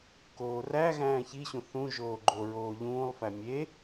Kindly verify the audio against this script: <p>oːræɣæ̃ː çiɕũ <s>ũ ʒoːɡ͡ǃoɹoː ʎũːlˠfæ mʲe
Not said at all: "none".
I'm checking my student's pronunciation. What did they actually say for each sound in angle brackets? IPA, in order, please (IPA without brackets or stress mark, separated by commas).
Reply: k, θ